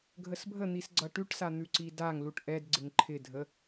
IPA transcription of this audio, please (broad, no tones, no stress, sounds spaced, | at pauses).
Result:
ɡʱ ə s bʱ ə n̪ i s ɡ͡ǀ ʌ ʈ ʉ ʈ s a n̪ ʉ ǀ i d a ŋ l u ʈ ʔ ɛ d ɡ͡ǀ ɪ ŋ ǃʰ ɪ dʱ ə